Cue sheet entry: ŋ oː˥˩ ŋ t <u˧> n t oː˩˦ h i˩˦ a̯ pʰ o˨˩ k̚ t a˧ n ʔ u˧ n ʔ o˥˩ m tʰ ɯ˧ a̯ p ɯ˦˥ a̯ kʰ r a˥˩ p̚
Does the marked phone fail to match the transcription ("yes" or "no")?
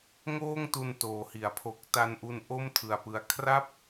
no